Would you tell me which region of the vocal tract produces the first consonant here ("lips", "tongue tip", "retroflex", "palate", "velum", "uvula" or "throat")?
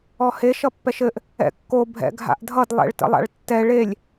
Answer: throat